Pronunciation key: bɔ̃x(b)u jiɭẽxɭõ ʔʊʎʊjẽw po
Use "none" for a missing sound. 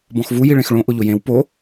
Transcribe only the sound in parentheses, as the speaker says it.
v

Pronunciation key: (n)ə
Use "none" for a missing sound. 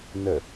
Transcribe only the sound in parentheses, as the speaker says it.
n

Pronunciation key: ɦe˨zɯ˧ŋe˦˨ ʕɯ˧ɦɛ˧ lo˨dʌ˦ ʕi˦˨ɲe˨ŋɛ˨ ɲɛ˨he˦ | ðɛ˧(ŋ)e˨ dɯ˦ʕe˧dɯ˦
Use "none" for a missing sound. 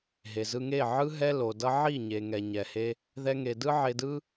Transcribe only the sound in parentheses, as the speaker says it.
ŋ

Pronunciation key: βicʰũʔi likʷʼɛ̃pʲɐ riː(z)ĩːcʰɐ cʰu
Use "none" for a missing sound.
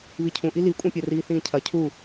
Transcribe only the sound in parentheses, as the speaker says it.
θ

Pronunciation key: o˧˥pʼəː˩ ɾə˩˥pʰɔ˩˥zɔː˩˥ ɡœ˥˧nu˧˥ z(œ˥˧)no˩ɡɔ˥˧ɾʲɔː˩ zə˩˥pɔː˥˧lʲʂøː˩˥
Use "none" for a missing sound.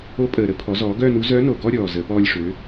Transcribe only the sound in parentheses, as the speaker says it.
œ˧˥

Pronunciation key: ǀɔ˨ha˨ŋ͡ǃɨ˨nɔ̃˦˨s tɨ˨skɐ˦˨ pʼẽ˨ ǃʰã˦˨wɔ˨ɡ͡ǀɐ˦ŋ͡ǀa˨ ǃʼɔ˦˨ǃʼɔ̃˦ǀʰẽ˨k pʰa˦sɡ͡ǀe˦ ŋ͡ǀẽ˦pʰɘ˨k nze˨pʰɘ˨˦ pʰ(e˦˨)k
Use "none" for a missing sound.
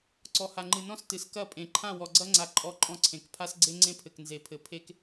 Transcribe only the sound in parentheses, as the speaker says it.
e˦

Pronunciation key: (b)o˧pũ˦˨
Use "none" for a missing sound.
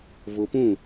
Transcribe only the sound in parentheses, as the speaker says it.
v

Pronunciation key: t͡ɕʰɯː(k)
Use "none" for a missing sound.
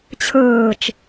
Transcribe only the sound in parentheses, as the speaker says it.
t͡ʃ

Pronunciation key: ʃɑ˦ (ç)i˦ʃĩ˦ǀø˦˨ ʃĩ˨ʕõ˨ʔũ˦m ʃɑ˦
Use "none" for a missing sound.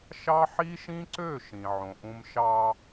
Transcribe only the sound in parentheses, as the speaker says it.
ħ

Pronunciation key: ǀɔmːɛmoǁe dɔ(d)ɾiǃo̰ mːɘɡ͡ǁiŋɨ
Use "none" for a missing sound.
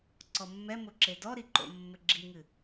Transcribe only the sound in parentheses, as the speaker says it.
none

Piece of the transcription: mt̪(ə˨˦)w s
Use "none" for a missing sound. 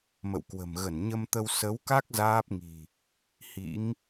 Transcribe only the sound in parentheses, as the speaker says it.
ə˧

